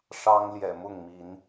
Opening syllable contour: high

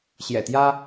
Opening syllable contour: low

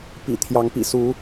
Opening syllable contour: low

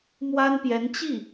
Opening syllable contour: high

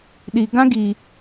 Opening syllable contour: low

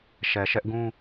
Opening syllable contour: low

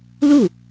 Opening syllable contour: falling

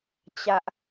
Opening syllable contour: high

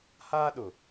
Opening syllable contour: high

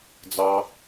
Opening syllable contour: low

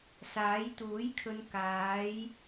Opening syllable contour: rising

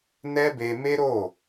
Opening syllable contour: high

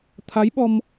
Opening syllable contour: rising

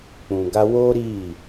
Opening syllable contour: low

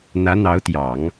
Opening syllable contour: rising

